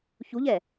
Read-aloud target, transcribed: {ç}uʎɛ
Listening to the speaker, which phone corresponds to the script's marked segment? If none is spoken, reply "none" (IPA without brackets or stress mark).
ç